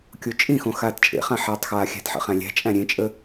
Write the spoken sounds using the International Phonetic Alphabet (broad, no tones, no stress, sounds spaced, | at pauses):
kʲ o t͡ʃʼ ĩ x õ x aː t t͡ʃʼ ḛ χ ã ħ aː tˤ x aː xʲ æ̤ t ħ ə̰ χ æ̃ lʲ æ̤ t͡ʃʼ æ̃ ɾʲ ẽ t͡ʃʼ ə